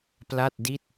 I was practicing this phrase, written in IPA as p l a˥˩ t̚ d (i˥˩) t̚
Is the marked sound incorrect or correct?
correct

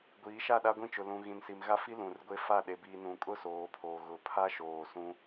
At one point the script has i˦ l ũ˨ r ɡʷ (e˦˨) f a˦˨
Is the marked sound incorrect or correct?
incorrect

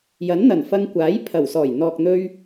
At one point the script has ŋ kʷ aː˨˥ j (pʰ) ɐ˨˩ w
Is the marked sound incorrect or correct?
correct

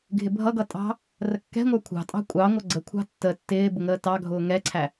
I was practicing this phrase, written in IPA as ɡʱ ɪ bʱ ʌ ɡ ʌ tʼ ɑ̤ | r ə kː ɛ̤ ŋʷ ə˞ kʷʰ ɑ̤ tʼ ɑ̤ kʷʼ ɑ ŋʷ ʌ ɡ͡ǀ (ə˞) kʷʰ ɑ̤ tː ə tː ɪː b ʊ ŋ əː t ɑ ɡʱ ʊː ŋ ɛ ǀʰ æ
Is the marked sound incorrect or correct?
incorrect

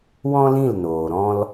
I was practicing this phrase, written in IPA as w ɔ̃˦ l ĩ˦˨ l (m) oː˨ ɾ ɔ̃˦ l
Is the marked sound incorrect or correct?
incorrect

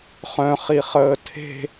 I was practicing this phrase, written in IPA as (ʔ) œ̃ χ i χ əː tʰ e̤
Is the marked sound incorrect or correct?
incorrect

